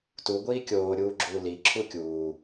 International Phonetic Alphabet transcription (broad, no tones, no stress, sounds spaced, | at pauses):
t u ɡʷ iː kʲ oː ɾʲ uː ɡ͡ǁ uː l i ǁʰ u kʲ uː